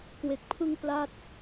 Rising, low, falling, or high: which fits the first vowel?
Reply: low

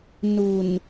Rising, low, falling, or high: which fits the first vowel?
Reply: low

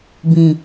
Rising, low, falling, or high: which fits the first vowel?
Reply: low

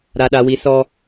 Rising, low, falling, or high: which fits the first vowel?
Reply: high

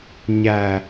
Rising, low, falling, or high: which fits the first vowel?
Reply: low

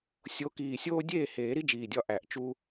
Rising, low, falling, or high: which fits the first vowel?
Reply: rising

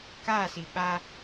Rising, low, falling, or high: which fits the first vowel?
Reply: falling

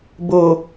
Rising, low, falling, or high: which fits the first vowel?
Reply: low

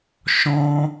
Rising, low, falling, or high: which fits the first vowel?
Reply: high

